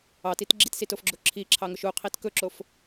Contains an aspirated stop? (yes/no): yes